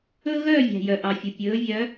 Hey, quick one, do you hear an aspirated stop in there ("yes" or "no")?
no